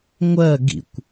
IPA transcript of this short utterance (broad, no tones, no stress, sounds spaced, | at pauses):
ŋʷ ɜ ɡ ḭ kʷ